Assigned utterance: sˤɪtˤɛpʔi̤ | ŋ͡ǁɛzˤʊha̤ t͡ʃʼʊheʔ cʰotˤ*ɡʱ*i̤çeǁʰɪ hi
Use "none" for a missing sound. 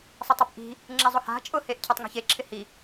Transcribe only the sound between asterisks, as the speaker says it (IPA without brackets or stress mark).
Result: ŋ